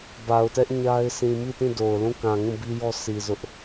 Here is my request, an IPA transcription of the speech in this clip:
ba˨ʊ̯tɛ˦ʔ ɲa˦ɪ̯ sʰĩ˨mi˦˨tĩ˦˨ do˨ʊ̯ lũ˦˨kã˨ŋũ˦˨ bi˦jɔ˦ si˨ zʊ˦ʔ

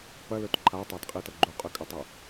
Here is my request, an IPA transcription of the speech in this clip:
pɐlɵt ǃʰatˤadqʼitɐ ɡ͡ǃuqʼʉkʼɐtˤɐ

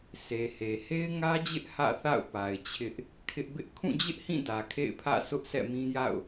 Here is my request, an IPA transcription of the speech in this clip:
se˨he˨ he˦ɪ̯ŋä˦d͡ʑɪ˦ʔ hä̰˦˨θa̰˦˨ʊ̯pa˨ɪ̯ t͡ɕʰɪ˦ʔ | kʰɪ˦ʔ bɪ˦ʔ kʰũ˦˨d͡ʑɪ˦ʔhĩ˦˨ dä˨kʰḛ˦˨ɪ̯pʰä̰˦˨ sʊ˦ʔsɛ̰˦˨mĩ˦ ja̰˦˨ʊ̯

